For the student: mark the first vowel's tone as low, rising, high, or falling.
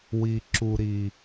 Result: low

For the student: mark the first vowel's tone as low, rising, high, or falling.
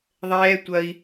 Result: high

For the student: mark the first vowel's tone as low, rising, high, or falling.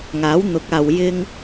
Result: rising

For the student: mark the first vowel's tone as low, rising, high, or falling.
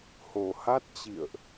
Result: low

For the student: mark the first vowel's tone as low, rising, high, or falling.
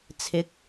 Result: rising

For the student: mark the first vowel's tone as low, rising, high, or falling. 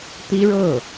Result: high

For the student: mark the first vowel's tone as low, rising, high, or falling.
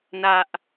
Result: high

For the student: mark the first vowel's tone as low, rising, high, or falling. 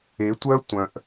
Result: rising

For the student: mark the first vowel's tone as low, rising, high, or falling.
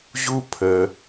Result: high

